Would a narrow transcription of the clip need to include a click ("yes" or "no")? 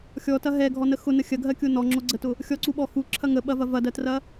yes